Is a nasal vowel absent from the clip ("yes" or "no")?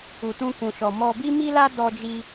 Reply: no